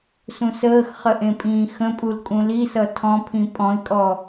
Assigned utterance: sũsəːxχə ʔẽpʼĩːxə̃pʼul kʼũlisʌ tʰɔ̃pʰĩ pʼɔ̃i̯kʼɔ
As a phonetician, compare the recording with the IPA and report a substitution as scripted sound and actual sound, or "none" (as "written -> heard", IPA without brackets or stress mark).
none